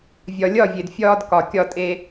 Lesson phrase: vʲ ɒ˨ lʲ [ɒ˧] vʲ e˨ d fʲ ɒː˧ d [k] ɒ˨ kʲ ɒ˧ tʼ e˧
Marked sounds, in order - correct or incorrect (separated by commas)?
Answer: incorrect, correct